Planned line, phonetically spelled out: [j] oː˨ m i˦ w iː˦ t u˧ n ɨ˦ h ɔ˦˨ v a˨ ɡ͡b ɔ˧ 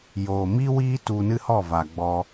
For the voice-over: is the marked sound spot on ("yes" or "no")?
yes